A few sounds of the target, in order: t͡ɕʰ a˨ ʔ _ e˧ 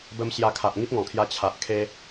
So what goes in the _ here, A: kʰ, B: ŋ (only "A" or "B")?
A